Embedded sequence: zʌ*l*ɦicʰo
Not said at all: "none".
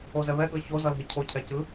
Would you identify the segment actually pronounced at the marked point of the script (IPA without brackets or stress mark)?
l